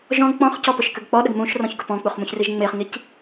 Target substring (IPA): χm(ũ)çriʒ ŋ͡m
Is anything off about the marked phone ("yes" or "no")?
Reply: no